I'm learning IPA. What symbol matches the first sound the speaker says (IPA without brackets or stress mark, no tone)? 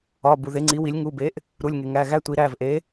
ɒ